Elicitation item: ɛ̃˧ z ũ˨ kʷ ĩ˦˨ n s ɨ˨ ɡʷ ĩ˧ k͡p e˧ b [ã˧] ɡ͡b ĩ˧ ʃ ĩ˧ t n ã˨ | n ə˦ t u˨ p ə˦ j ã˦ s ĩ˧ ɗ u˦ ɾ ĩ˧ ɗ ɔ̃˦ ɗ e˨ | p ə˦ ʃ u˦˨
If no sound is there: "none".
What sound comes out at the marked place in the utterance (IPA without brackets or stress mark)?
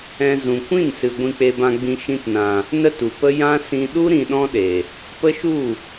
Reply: ã˧